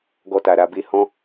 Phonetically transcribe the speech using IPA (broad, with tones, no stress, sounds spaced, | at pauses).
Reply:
ɡ ɔ˧ t a˨ ɾ a˧ b e˦ h ɔ̃˦